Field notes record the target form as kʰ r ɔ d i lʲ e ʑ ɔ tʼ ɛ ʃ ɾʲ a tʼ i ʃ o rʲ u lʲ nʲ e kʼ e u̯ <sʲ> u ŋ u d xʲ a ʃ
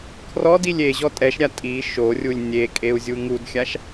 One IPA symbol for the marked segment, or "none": zʲ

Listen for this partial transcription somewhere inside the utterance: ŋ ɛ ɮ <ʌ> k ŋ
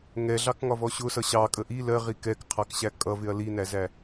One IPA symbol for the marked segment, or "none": ɑ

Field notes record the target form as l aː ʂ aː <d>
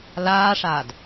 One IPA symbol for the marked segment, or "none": d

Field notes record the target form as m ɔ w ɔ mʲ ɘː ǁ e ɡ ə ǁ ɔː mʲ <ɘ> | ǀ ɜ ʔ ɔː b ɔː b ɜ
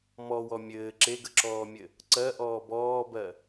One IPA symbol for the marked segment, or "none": ɘ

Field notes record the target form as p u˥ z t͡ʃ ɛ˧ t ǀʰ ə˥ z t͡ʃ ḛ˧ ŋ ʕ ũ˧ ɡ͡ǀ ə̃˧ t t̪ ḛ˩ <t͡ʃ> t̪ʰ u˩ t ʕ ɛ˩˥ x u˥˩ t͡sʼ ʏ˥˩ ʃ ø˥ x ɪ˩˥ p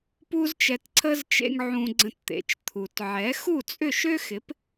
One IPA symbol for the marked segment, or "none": t͡ʃ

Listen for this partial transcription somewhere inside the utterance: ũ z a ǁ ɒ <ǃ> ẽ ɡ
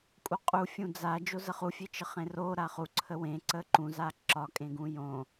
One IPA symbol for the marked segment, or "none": kʼ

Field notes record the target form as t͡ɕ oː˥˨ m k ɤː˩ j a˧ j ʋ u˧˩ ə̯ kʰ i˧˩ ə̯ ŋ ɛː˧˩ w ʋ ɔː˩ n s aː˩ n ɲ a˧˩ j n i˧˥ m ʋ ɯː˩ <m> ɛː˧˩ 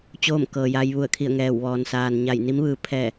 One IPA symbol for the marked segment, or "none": pʰ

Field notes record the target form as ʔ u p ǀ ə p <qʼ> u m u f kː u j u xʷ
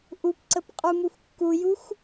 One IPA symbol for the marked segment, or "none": qʼ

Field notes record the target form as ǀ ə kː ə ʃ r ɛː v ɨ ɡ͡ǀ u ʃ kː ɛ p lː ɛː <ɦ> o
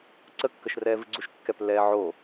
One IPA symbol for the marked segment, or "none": ʕ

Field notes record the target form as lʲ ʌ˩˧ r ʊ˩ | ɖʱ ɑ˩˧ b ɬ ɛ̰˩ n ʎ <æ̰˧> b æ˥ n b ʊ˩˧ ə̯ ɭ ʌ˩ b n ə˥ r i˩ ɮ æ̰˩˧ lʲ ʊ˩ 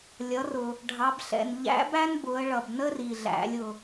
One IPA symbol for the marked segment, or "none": æ̰˧˥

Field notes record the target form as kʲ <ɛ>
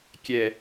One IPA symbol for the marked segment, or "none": ɛ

